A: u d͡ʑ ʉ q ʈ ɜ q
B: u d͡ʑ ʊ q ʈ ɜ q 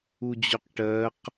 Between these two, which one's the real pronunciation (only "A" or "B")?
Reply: B